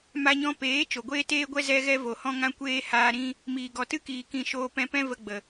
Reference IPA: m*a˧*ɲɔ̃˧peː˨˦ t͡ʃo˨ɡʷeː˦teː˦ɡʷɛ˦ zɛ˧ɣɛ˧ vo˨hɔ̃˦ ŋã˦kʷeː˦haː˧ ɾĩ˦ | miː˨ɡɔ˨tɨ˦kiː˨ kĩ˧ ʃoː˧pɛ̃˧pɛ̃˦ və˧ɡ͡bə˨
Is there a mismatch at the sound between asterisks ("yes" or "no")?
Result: no